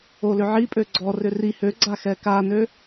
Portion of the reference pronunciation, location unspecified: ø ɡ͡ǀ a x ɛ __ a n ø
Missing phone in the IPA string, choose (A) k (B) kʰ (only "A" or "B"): A